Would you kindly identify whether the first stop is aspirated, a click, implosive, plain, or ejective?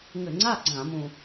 click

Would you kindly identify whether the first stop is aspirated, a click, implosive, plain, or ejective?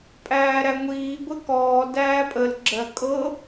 ejective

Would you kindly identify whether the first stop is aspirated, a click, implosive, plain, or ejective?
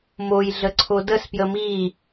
click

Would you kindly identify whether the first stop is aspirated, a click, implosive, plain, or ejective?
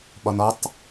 implosive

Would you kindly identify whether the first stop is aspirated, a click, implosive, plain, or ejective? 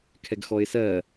aspirated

